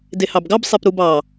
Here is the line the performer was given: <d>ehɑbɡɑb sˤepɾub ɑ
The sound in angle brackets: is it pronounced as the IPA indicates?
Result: yes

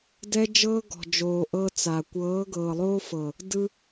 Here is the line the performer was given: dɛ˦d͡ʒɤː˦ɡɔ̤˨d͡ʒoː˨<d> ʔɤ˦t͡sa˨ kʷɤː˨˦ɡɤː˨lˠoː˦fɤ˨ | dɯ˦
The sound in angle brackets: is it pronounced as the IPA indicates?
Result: no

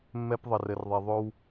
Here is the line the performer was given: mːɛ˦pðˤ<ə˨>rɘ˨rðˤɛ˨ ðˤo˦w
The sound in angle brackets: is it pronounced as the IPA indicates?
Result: yes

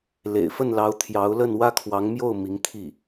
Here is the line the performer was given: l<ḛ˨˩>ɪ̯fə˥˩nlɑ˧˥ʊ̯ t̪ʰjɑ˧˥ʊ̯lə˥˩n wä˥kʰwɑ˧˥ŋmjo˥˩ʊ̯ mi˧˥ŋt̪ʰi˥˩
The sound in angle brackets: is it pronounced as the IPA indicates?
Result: yes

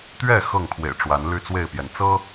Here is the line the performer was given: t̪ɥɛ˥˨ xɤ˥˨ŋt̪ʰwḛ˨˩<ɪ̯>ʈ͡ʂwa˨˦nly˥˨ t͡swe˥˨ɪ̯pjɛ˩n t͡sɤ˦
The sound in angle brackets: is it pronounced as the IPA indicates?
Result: yes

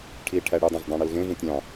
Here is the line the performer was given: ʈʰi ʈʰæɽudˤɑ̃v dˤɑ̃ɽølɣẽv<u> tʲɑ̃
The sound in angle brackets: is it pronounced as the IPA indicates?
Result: no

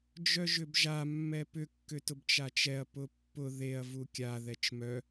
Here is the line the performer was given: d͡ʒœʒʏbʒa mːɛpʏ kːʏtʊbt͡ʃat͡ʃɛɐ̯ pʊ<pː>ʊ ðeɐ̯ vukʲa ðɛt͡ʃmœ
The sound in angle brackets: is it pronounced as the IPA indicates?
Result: yes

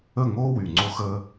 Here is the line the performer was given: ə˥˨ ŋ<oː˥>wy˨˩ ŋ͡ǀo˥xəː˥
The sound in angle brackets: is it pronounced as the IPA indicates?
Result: yes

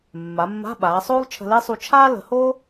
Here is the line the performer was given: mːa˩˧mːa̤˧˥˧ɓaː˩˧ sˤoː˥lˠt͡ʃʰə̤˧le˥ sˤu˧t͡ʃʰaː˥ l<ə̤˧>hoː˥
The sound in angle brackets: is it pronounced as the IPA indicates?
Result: no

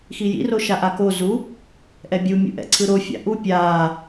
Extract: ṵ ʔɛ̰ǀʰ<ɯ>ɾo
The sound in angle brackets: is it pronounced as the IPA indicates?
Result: yes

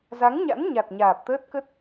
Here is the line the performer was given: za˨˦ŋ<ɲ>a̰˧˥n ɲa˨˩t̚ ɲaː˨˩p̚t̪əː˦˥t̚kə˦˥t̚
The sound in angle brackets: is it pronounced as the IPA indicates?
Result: yes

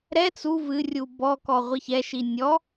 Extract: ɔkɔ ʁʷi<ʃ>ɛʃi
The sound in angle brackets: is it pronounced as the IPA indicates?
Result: no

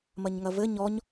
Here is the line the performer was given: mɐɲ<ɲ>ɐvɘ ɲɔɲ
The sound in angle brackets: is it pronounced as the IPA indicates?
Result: no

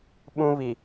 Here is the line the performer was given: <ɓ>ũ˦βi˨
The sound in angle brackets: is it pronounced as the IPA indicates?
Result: yes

